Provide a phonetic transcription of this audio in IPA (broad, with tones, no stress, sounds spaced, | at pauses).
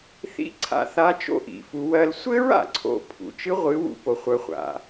θ ḭ˧˥ ǀʰ a̰˧ θ a˧˥ t͡ʃ o̰˥ ʔ ḭ˩˧ f u˧˥ w ɜ˥ l sʷ ɘ˥ ɹ a̰˩ ǀʰ o̰˧˥ pʰ ṵ˩˧ t͡ʃ ɨ˥ ʁʷ ɨ˧˥ w ṵ˥ p o˧ χʷ œ˧˥ χʷ a̰˩